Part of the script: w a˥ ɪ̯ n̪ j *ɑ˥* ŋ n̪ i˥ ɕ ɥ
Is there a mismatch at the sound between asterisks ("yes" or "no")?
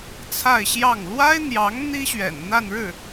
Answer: yes